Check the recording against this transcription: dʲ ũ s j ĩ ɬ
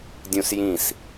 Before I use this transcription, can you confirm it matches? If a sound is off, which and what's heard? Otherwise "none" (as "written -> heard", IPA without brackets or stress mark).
ɬ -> s